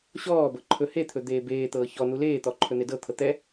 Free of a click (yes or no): no